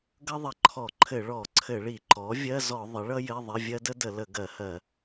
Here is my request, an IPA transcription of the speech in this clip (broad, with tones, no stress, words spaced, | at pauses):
ɡʌ˥ðˤə˧˩˧ǃʰɔ˧˩˧ǃʰɘ˧˩˧ ɭɔ˧˩˧ǀʰɘ˧˩˧ɭi˧˩˧ ǃɔ˩˥ vʲɜ˧˥˧zɔ˧˩˧ ðˤə˩˥ɭʌ˥jɘ˧˥˧ ðˤɘ˧˥˧vʲɜ˥ də˥də˧˩˧lə˧˩˧ ɡɜ˧˩˧hɜ˧˩˧